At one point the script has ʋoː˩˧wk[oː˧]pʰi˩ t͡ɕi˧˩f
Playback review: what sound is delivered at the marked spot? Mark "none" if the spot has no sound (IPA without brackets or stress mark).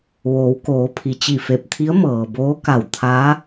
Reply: oː˩˧